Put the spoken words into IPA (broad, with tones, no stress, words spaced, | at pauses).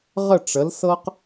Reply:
ʁə˥˧ʈ͡ʂə˨˥lsɤ˥q